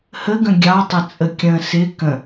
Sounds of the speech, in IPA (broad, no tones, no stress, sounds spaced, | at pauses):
h ə ɡ ə̃ ɡʲ ɑ tˤ ə t͡sʼ ə kʲ ə̃ s ɪ k ə̃